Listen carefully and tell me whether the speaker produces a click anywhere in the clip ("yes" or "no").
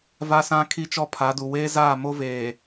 no